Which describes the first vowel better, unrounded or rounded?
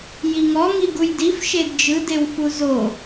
unrounded